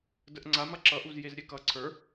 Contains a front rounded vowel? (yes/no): no